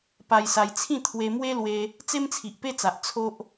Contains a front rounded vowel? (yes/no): no